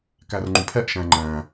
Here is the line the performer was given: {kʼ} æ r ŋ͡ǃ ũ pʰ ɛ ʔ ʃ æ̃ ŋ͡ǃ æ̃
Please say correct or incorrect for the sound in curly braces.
incorrect: k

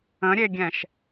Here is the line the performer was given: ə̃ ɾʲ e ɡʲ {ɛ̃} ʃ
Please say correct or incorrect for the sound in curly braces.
correct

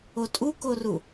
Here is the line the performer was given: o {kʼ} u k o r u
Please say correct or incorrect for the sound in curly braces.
incorrect: tʼ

